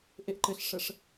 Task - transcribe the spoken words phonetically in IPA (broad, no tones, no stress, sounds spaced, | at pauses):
ʔ e ʔ ǃ ɘ ɬ ʂ ə ʂ